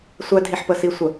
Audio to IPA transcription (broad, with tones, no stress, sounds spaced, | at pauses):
sʷ æ˦ dʱ i˨ ħ p ə˨ s i˨ sʷ ə˨